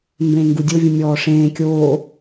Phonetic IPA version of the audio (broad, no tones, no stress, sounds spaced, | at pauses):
m b ẽː ŋ ɡ u dʲ o vʲ ũ mʲ ɔː ʂ ẽː kʲ oː